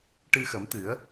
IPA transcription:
ʈ ɨ˧ x ə˨˩˦ m t̪ ɨ˨˩˦ ə̯

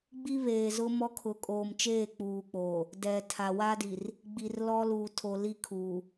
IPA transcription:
ɡ͡b i˦ β eː˨ z ʊ˦ m ɔ˦ kʰ ʊ˨ kʼ oː˨ m t͡ʃ eː˦˨ k͡p uː˨ k͡p oː˨ | d ɛ˨ tʰ a˨ w a˦ d i˨ r | ɡ͡b i˨ r l ɔ˦ l uː˨ tʰ o˨ l i˦˨ kʰ uː˨

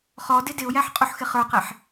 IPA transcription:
χ ɔ d ɪ d ɪ ʊ̯ j æ ħ qʼ u ħ x ɪ χ ə˞ q ɛ ħ

